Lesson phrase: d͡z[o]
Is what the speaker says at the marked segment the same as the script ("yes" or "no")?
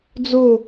yes